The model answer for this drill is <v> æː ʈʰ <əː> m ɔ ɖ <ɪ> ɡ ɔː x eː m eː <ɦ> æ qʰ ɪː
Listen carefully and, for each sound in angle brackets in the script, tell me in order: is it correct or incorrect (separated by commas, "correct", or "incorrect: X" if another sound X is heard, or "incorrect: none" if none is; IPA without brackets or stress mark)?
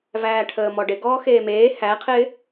correct, correct, correct, incorrect: h